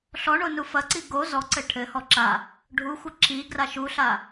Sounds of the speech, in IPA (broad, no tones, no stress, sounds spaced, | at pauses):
ɬ ɔ ɳ o n u f ɐ ǀ i ɡ o z ɔ ǀ ɘ ʈʰ ɘ h ɔ ǁ a | ɖʱ u xʷ ɐ ǁ i ɡ r a ʃ u ɬ a